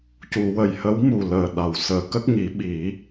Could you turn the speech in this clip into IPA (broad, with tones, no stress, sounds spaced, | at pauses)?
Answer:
c u˨˩˨ w ə˨˩ j h ə˧˥ w m u˨˩ l əː˨˩ ɗ a˨˩˨ w s əː˨˩˦ k ə˦˥ k̚ ŋ i˨˩˦ ɓ i˨˩˦